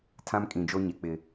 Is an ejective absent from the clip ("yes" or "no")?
no